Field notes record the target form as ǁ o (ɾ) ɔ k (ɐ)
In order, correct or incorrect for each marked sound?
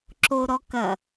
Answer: correct, correct

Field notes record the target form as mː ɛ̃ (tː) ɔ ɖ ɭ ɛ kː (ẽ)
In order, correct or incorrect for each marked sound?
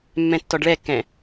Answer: correct, incorrect: ɛ̃

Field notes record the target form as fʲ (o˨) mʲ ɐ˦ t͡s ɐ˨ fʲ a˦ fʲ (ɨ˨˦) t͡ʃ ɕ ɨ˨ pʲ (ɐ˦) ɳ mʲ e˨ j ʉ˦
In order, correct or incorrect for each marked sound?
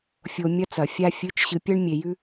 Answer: correct, correct, correct

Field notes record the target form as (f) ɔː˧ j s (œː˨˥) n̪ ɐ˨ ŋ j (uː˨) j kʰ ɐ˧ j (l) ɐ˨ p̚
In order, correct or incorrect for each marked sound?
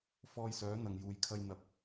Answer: correct, correct, correct, incorrect: n̪

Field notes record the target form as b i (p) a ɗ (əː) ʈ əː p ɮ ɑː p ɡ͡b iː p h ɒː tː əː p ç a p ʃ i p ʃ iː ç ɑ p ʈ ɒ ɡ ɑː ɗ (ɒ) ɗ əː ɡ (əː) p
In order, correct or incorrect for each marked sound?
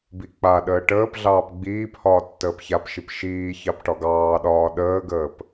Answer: incorrect: k͡p, correct, incorrect: ɒː, correct

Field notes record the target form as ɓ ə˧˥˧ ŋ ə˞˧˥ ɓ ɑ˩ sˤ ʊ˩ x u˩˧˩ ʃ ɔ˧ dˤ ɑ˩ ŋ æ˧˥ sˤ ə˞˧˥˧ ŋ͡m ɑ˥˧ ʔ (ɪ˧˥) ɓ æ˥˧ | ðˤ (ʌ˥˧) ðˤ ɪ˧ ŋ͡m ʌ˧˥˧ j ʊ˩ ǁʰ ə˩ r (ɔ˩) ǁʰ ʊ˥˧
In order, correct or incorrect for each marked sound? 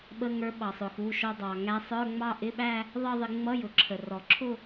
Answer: incorrect: ɪ˧˥˧, correct, correct

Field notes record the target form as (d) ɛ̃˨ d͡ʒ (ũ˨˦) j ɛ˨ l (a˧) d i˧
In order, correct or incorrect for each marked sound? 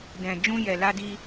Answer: correct, incorrect: ũ˧, correct

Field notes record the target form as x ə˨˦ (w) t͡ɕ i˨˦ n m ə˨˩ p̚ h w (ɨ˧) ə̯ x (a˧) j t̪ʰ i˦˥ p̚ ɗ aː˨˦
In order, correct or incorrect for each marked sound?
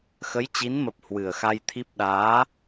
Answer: incorrect: j, incorrect: ɨ˨˩, correct

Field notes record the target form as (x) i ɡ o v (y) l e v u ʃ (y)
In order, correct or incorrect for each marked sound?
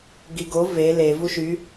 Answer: incorrect: ɡ, incorrect: e, correct

